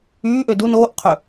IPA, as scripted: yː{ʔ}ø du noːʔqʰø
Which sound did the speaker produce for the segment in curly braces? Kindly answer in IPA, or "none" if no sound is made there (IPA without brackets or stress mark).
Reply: ʔ